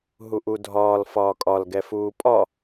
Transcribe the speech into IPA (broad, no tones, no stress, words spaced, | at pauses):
ɦuʔudʱɒːl fɒːkʼɒl ɡɛfuːpʼɒ